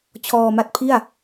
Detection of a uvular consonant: absent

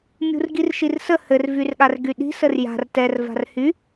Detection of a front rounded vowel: present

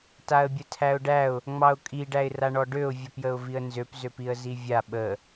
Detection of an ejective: present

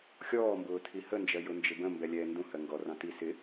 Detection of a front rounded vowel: absent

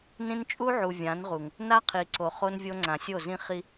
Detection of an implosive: absent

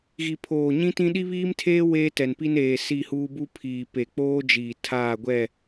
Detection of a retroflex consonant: absent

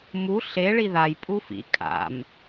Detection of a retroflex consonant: present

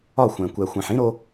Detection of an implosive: absent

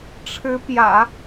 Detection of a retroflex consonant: present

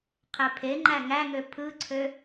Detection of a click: present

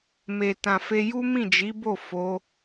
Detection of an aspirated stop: absent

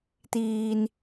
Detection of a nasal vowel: absent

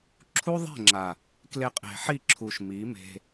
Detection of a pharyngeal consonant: present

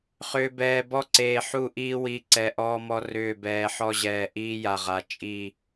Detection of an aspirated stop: absent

